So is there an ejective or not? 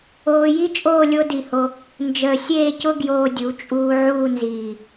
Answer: yes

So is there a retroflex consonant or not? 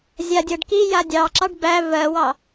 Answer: yes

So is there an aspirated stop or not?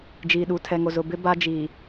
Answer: yes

